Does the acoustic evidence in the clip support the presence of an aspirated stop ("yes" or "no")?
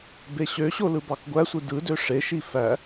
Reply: no